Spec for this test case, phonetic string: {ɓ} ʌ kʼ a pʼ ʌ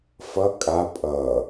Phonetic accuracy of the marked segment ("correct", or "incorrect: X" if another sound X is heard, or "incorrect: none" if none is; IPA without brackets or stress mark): incorrect: f